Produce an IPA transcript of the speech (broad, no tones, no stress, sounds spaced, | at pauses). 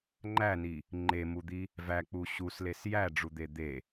ŋ͡ǃ æ n i | ŋ͡ǃ e m u d̪ i | v æ k͡p u ɕ u s l e s j æ ɖ͡ʐ u d̪ e d̪ e